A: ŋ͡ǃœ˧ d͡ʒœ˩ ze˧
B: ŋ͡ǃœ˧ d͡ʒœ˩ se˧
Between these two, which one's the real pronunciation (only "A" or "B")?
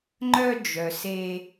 B